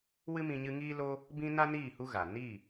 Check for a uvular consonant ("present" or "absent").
absent